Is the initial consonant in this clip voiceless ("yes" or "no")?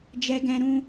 no